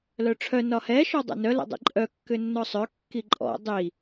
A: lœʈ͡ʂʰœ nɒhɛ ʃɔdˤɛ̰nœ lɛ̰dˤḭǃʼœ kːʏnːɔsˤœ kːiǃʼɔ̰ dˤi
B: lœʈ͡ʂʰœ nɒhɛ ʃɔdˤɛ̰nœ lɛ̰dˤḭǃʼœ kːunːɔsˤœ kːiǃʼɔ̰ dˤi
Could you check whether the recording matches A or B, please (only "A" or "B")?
A